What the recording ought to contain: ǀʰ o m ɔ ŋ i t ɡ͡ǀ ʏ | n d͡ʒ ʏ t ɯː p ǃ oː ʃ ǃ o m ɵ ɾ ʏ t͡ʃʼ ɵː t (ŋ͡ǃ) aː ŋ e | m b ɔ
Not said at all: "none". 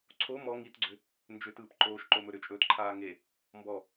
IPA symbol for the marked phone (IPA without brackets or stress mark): ǃʰ